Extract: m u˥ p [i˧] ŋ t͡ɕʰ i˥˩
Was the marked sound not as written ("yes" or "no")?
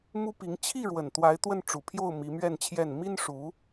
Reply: yes